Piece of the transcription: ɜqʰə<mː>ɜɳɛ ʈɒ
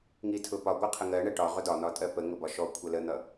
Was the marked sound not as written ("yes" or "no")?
yes